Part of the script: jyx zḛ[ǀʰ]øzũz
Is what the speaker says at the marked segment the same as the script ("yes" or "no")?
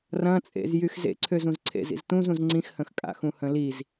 yes